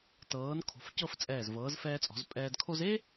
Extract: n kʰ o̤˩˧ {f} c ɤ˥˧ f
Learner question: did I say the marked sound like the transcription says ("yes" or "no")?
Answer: yes